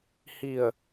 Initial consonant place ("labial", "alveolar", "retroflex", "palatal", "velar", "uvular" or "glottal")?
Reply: glottal